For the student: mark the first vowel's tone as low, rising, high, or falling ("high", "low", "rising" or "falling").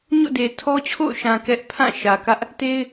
falling